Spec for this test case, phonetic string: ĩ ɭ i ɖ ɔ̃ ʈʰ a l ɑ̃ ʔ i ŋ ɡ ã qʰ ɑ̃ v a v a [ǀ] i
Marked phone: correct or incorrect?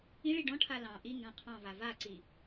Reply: correct